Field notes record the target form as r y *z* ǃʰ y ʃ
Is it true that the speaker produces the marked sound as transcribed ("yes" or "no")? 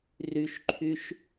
no